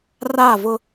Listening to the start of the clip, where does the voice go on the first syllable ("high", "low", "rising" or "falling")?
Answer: falling